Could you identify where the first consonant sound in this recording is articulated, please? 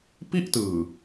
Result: labial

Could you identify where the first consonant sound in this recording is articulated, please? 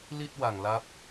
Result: alveolar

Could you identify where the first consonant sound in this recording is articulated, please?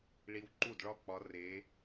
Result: retroflex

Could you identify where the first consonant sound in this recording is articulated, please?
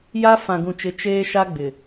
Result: palatal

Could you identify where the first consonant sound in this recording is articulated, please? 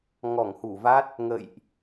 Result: velar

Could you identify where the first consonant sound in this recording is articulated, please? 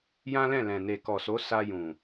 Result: palatal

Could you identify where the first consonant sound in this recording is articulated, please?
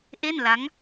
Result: glottal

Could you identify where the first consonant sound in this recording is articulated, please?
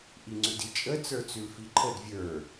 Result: glottal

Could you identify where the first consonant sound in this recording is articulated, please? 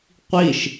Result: uvular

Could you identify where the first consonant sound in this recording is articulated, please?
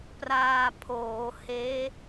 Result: labial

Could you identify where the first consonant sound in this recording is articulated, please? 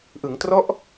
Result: glottal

